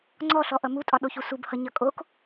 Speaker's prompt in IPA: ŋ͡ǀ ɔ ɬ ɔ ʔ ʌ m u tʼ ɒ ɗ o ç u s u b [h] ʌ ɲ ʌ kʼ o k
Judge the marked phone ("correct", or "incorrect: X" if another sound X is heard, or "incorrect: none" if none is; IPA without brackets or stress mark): correct